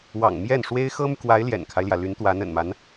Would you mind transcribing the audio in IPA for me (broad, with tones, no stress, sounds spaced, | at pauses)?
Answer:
w ɑ̰˨˩ ŋ m j ɛ˥˩ n ʂ w e˥ ɪ̯ x ɤ˥ m y˨ k w a˧˥ ɪ̯ l j ɛ̰˨˩ n kʰ a˦ ɪ̯ l j ä˩ l y˧˥ n t̪ w a˧˥ n ə̰˨˩ n m a˧˥ n